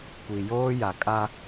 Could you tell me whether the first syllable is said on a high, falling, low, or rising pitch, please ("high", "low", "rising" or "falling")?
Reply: low